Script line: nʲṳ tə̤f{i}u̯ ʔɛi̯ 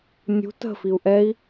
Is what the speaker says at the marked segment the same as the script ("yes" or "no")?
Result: yes